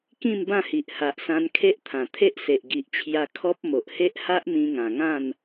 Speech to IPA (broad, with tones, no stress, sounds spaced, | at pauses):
k ĩ˥˧ m b ã˥˧ h i˨ ʔ h a˨ ʔ s ã˧ n kʰ e˦ ʔ t̪ʰ ã˨˩ t̪ʰ e˦ ʔ s e˨ ʔ ɡ i˨ ʔ t͡ɕʰ j a˧ kʰ ɔ˦ p̚ m o˨ ʔ h e˦ ʔ h a˦ ʔ m ĩ˧ ŋ ã˨˩ ŋ ã˥˧ n